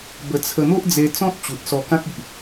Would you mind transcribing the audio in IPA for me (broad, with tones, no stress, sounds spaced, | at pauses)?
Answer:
b ə˧ t͡sʰ ə˧ n̪ o˦ ʔ d͡z e˧ t͡s ɔ̃˦ t̚ t͡ɕ u˨ t̚ s ɔ˧ k ã˦ k̚ i˨ ʔ